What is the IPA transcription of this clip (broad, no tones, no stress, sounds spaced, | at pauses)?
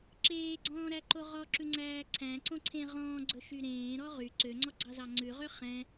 ǁ eː ɡ͡ǀ ɔ̃ː ɾ æ ǃ o ʁ ɔ ǁ ʉ ŋ͡ǀ æː ǀʰ æ̃ ǀ õ ǀʰ ẽ ʁ ɔ̃ː ɡ͡ǀ ɵ ʃ y ɾ ẽː ɾ ɔ ʁ y ǀ ø ŋ͡ǀ ɔ ɡ͡ǀ ɑ z ɑ ŋ͡ǀ ʉ ʁ ø χ ɛ̃